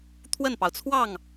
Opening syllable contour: falling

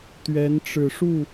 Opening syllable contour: rising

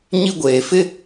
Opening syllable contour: high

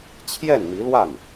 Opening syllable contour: falling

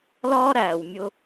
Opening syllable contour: high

